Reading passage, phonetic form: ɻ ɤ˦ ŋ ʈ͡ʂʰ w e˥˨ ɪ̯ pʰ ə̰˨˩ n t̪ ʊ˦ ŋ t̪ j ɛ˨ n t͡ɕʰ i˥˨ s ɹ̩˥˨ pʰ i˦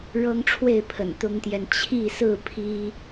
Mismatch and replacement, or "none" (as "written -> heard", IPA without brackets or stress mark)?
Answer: none